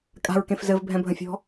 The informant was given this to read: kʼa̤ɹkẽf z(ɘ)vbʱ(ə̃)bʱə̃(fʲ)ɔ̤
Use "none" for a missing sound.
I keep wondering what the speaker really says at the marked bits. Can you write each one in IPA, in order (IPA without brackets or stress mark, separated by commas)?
ɘ, ɛ̃, fʲ